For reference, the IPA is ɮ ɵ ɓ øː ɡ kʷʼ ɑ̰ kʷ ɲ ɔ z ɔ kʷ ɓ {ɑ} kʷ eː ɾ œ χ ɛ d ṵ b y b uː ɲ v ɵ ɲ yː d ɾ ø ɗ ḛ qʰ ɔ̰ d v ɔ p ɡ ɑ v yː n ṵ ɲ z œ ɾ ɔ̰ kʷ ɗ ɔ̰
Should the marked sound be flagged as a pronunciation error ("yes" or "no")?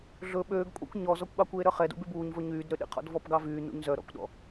no